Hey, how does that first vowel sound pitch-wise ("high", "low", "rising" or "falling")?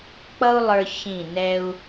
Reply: high